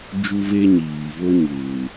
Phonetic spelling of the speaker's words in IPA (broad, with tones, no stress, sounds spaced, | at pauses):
d͡ʒ u˦ v e˦ ɲ iː˨ v o˦ ɲ uː˨